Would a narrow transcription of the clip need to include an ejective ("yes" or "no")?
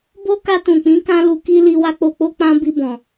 no